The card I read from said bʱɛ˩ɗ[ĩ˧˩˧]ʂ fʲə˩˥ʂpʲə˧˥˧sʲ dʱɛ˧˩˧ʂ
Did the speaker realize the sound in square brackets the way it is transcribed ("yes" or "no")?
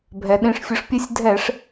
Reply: yes